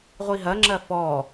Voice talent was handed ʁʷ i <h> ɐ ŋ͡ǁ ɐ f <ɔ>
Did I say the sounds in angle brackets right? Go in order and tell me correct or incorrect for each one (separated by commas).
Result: incorrect, correct